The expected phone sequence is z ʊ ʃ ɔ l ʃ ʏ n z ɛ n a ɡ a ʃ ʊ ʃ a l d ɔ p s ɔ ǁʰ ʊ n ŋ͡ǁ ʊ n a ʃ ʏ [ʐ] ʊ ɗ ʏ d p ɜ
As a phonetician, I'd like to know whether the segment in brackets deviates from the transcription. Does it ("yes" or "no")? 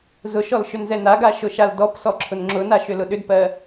yes